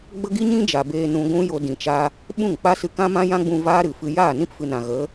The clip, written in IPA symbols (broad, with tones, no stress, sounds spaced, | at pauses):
ɡ͡b ə˦ ɡ i˦ ɲ ĩ˦ d͡ʒ a˨ b eː˧ n ũ˧ ɡʷ ũ˦ j o˧ d ĩ˨ t͡ʃ a˧ | ɓ ũ˦˨ ŋ k͡p a˦ s ɨ˧ k ã˦ m ã˦ j ã˦ ɡ͡b ũ˧ v aː˦ ɾ ɨ˨ f ɨ˧ j aː˦˨ n ĩ˦ p f ɨ˨ n ã˨ ɣ ə˨˦